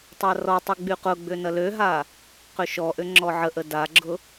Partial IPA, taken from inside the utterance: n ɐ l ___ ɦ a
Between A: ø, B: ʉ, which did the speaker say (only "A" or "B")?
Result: A